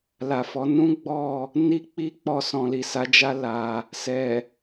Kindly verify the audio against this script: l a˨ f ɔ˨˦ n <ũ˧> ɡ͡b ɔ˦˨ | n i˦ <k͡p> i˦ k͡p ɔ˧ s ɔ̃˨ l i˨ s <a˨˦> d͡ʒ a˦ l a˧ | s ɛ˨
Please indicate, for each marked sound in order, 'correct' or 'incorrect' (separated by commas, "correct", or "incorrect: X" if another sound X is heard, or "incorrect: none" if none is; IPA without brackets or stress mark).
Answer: incorrect: ũ˦, correct, correct